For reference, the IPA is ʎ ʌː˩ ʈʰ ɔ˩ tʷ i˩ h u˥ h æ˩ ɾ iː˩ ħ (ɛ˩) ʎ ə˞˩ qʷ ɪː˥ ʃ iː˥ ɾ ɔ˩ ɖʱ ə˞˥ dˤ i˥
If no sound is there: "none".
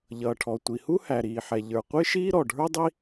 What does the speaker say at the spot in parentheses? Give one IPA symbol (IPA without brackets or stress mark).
ɛ˩